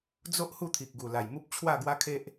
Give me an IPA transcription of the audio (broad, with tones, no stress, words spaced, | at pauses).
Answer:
d͡zo˦ʔ hu˥˧t̪ʰi˨k̚ɡu˨˩la˨˩j mu˦p̚t͡ɕʰwa˥˧ɡwa˦kʰe˦ʔ